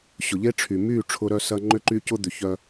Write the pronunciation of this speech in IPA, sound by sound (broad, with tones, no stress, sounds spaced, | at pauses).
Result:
ɕ ʊ˨ ʎ e˦ ʈ͡ʂʰ y˨ m y˦˨ ʈ͡ʂʰ ʊ˦ ɾ œ˦ s ɐ˦ ŋ͡ǃ ʏ˦ ǃ y˦ c ʊ˦ d̪ ʏ˨ ç œ˦